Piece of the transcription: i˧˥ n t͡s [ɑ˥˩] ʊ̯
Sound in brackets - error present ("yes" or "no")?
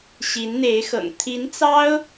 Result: yes